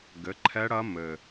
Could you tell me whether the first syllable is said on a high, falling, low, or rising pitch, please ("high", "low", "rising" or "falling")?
rising